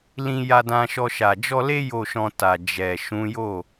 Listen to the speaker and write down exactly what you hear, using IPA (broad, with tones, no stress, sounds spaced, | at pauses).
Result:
l ĩ˧ j a˧ d ã˧ ʃ ɔ˧ ʃ a˨ d͡ʒ ɔ˧ l e˦ j o˦˨ ʃ ɔ̃˧ t a˨ d͡ʒ ɛ˨ ʃ ũ˨˦ j o˦˨